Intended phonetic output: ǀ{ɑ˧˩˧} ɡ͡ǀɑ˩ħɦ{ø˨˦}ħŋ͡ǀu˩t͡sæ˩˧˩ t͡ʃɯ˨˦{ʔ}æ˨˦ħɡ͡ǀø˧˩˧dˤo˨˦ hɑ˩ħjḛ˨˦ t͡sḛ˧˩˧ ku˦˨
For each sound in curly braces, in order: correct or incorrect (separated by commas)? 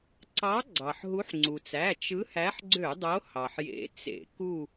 incorrect, incorrect, incorrect